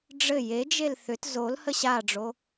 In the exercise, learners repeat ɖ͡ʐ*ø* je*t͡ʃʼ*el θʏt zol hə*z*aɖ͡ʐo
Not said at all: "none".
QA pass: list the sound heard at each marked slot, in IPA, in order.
ɘ, d͡ʒ, ɕ

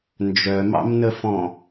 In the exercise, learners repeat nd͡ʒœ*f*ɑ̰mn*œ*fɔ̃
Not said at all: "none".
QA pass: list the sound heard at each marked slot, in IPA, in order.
m, ə

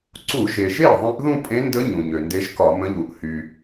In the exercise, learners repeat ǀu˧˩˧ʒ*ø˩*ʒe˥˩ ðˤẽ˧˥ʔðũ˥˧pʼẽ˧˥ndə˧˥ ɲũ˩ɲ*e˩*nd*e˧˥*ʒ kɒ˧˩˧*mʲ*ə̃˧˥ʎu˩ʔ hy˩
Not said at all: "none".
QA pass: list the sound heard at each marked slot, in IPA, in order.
e˩, ø˩, e˧˥, m

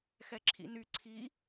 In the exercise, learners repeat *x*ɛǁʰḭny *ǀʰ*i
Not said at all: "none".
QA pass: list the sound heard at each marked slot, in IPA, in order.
x, ǀʰ

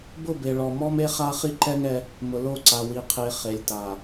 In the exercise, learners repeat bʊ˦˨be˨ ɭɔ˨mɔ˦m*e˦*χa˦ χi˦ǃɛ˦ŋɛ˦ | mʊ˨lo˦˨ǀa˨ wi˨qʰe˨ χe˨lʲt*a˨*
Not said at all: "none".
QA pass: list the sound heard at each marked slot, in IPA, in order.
e˦, a˨

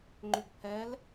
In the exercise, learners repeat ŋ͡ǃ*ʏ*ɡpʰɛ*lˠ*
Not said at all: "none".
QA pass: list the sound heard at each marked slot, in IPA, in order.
ʏ, l

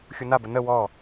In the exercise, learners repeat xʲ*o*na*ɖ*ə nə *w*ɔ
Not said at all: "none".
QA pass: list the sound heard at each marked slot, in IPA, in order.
u, b, w

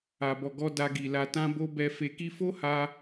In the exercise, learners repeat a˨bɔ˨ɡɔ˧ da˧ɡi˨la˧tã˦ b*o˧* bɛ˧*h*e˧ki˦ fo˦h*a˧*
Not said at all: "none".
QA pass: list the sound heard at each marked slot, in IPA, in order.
o˦, f, a˧

